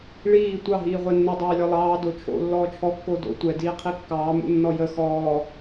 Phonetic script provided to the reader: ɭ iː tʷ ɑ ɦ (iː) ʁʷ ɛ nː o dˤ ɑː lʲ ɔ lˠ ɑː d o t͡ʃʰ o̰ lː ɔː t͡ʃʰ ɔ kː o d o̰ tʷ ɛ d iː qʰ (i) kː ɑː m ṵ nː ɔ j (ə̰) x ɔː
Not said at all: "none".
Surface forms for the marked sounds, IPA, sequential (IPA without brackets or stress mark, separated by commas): iː, i, ə